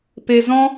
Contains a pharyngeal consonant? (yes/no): no